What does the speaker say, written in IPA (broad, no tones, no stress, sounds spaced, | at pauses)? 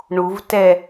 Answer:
ɳ u v t ɛ